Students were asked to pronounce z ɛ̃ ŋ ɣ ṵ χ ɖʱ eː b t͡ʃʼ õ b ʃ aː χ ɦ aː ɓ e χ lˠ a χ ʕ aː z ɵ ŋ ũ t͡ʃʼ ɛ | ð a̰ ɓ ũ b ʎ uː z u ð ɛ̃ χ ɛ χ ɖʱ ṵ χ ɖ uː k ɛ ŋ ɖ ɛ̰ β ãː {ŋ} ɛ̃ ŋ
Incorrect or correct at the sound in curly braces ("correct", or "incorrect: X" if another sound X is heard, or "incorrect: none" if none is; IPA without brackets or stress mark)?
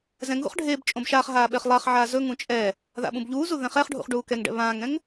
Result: correct